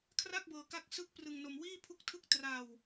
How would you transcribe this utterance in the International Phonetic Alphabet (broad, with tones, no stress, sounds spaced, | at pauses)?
kʰ r a˥˩ k̚ b ɤː˧ k a˦˥ k̚ s ɯ˦˥ k̚ p r ɯ˧ ŋ n o˧ m w iː˥˩ pʰ u˥˩ k̚ tʰ ɯ˥˩ k̚ t r a˧ w